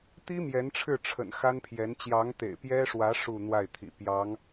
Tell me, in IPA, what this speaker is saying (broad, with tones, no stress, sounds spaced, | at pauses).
t̪ i˥ m j ɛ˧˥ n ʈ͡ʂʰ ɻ̩˥˩ ʈ͡ʂʰ ə̰˨˩ n x a˥ n pʰ j ɛ˧˥ n t͡ɕ j ɑ˧˥ ŋ t̪ ḛ˨˩ ɪ̯ p j ɛ˥ ʂ w ä˧˥ ʂ u˥˧ n̪ w a˥˩ ɪ̯ t̪ʰ ḭ˨˩ p j ɑ˧˥ ŋ